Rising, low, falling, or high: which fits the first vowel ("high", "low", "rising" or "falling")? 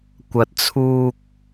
low